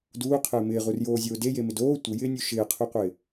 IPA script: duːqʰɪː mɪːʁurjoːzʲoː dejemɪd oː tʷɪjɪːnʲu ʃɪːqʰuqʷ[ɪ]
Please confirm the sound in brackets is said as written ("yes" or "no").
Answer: no